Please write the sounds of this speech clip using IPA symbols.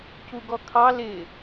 c u ɡ ɔ kʰ ɑ l ɪ

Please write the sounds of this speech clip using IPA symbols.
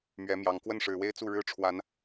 m ɥ ɛ˨˦ m j ɑ˨˩ ŋ k w ə˥˨ n ʂ ɻ̩˨˩ w e˦ ɪ̯ t͡s u˥˨ ɻ ɻ̩˦ ʈ͡ʂʰ w a˨˦ n

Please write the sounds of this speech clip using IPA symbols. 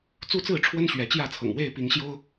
t͡s u˦ t͡s ɹ̩˥˨ ʈ͡ʂʰ w ə˦ n ɕ ɥ ɛ˨˦ t͡ɕ j ä˥˨ t͡sʰ ɤ̰˨˩ ŋ w e˥˨ ɪ̯ p i˨˦ ŋ ɕ j o˦ ʊ̯

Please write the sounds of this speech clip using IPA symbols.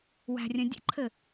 w æ̤ rʲ ə̃ dʲ ə̰ ǃʰ ɘ

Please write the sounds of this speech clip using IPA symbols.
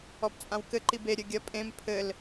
ɔ p t͡sʼ ã w k ɘ ǃ i b e ɾʲ ɘ ɡʲ ɐ pʼ ẽ m pʰ ɘ l

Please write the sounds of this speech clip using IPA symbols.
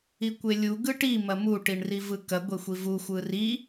i kʷ e lʲ u ɡ ɯ ʈ i m ɐ m u ʈ i ɳ r i v ɯ k ɐ ɡʷ e xʷ i v u xʷ ɯ r i

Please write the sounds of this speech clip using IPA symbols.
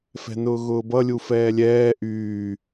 f ɛ̤ n ʊː ɣ ʊː b ʌ lʲ u f ɛː lʲ ɛː ʔ yː

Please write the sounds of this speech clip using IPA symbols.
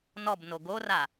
n ɔ b n o ɡ o r a

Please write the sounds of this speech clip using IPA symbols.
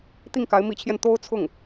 t̪ i˥˩ ŋ k a˧˥ ɪ̯ m i˧˥ t͡ɕʰ j ɛ˧ n t̪ o˥ ʊ̯ t͡sʰ ʊ˥˩ ŋ

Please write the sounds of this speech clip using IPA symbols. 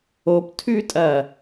o p tʰ ʉ tʼ ɐ

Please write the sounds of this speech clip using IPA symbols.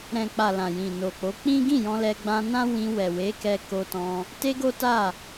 ɾ ɛ̃˨ k͡p a˨ l ã˨ j ĩ˨ n o˨ k͡p o˨˦ k͡p ĩ˦ ɡ ĩ˦˨ j ɔ̃˧ l ɛ˧ ɡ͡b ã˧ n ã˦ w ĩ˧ w ɛ˨ w e˨˦ k ɛ˧ k o˧ t ɔ̃˧ | t e˦ ɡ o˦ t a˦˨

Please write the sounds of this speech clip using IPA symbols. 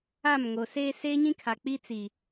a˦˨ m ŋ o˨ s eː˦ s eː˦ ɲ ĩ˦ kʰ a˨ k͡p i˦ t͡s i˨

